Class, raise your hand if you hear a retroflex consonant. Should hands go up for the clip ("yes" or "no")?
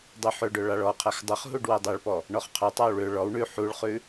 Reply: yes